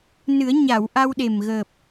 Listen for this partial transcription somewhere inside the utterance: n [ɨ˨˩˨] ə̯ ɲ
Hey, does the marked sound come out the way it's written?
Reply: no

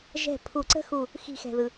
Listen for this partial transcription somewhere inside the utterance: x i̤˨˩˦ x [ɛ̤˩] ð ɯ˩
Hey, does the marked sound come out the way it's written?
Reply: yes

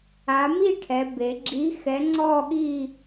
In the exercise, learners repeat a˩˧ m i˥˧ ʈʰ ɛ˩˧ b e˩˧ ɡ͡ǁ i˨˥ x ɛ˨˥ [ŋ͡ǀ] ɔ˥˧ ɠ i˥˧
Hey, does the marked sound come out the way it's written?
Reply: yes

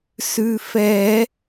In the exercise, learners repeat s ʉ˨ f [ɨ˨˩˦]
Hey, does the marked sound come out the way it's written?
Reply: no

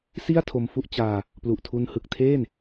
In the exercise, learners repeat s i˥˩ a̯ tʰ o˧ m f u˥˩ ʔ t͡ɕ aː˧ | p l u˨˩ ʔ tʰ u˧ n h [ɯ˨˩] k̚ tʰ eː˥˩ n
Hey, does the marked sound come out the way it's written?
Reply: yes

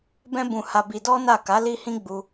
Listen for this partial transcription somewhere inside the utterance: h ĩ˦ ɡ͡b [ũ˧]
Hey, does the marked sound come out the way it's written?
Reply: no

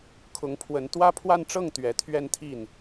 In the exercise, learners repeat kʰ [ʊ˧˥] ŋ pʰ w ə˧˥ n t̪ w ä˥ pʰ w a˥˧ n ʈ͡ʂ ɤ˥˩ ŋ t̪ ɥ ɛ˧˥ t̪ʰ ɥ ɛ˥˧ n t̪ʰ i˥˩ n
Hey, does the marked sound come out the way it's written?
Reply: yes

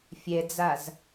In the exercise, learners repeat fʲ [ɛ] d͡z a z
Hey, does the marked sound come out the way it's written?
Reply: yes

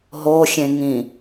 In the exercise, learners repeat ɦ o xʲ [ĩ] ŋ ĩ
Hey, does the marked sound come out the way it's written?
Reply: no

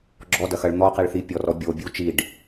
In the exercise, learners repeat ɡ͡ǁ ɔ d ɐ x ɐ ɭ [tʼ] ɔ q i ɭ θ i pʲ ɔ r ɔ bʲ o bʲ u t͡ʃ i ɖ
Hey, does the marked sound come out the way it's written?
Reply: no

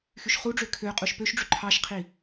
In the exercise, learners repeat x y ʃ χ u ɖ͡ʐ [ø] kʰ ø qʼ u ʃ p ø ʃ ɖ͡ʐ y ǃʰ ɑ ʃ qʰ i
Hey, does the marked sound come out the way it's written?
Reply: yes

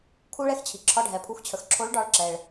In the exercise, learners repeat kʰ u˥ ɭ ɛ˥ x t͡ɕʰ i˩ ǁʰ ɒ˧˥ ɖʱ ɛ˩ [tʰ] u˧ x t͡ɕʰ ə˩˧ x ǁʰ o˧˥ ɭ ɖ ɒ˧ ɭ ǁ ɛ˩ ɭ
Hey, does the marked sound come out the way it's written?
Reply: no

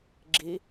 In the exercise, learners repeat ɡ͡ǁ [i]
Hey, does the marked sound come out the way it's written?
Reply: yes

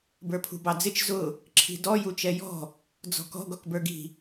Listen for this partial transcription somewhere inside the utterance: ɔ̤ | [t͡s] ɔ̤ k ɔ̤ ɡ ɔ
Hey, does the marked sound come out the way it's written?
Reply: no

